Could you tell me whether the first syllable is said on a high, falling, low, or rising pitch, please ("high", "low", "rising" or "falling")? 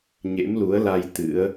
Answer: rising